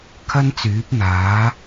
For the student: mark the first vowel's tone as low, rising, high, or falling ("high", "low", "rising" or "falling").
high